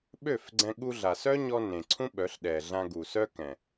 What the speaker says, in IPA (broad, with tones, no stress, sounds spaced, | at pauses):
ɓ ø˦˨ f ɡ͡ǀ ɛ̃˧ ɠ u˧ ɮ a˨ s œ˦ ɲ ɔ˧ n ẽ˨ ǀʰ ũ˦ ɓ œ˨˦ ɬ ɗ ɛ˨ ɮ ã˧ ɡ u˨ s œ˦ k ɛ̃˨